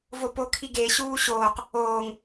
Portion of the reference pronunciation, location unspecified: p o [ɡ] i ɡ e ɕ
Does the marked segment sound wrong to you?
yes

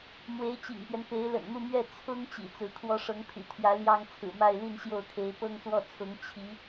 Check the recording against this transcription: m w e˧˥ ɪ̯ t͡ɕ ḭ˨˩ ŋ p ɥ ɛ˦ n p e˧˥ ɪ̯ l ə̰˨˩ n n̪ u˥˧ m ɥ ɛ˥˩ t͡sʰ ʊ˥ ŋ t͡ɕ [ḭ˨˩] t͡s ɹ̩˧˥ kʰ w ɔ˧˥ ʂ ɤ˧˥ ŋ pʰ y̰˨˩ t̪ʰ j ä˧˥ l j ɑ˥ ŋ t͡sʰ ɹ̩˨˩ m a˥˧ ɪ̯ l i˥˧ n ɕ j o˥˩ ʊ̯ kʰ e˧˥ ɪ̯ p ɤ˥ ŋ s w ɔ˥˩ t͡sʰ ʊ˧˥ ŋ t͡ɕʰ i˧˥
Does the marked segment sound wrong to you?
no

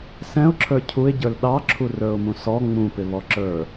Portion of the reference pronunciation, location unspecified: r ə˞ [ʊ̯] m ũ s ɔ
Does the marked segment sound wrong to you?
no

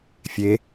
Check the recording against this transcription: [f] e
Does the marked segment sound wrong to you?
yes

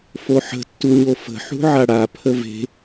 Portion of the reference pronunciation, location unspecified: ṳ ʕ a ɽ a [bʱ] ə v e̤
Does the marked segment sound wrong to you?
yes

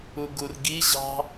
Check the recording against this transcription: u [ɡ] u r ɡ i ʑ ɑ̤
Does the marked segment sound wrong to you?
no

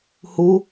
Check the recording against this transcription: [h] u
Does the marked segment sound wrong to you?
no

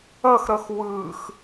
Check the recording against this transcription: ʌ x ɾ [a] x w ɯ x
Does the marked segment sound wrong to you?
yes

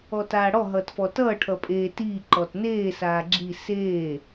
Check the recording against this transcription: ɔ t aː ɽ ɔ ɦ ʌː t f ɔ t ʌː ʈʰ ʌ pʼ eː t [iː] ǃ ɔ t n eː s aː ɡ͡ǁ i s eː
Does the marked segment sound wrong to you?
no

